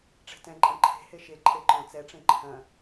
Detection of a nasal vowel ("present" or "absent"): present